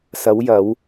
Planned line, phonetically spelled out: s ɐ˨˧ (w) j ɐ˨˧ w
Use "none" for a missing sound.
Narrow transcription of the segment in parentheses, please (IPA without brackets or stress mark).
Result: w